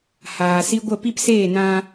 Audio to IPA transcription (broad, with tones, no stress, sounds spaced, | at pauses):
h aː˨ s i˦ ɡʷ ə˦˨ p i˦ p s eː˦˨ n ã˧